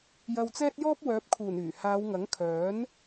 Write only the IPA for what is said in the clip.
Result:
j ɐ˧ w t͡s ɛː˥ t̚ j ɔː˥ p̚ w œː˨˥ p̚ kʰ uː˨˩ n yː˨˩ h aː˨˧ w ŋ ɐ˨˥ ŋ kʰ œː˨˥ n

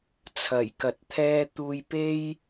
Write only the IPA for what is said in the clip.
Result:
t͡sʰ ɐ˨˩ j k ɐ˨˥ t̚ t̪ʰ ɛː˥ t̪ uː˧ j p e˥ j

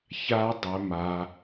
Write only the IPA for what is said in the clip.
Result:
ç a˦˥ dˤ ɵ˦˥ m a˦˥

